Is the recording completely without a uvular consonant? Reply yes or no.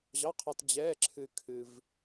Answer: no